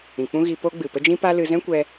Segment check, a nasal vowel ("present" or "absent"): present